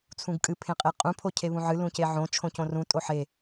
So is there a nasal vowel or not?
yes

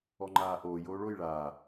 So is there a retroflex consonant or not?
yes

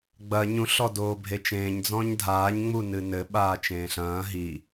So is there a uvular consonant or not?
no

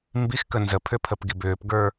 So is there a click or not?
no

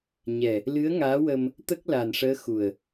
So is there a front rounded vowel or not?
no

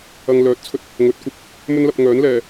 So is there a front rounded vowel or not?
yes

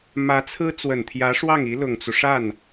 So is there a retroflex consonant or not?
yes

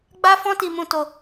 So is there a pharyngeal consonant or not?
no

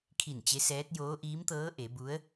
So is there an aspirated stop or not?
yes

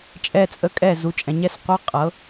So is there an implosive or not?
no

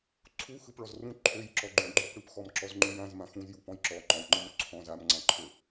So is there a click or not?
yes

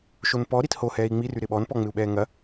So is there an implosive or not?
yes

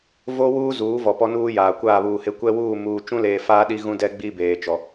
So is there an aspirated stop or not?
no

